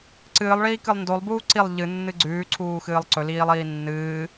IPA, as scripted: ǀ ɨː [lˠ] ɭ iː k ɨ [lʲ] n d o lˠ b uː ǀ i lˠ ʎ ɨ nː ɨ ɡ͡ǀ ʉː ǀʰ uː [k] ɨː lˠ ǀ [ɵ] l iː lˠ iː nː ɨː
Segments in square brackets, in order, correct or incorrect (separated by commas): correct, incorrect, incorrect, correct